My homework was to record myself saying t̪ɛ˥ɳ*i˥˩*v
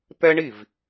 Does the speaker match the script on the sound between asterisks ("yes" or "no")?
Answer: yes